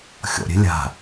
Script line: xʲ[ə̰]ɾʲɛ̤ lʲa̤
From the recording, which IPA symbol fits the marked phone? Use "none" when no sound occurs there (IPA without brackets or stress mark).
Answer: ɔ̰